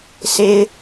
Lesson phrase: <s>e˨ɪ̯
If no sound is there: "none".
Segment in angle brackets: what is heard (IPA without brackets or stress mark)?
s